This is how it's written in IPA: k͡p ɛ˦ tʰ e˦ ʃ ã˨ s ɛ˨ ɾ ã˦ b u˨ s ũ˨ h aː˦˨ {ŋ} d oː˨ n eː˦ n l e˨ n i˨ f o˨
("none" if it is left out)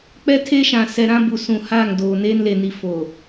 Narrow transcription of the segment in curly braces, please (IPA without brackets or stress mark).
ŋ